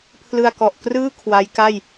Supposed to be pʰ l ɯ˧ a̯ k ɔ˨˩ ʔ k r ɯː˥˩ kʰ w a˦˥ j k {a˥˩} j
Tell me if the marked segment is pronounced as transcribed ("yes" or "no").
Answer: yes